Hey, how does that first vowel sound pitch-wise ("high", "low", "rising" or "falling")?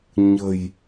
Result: low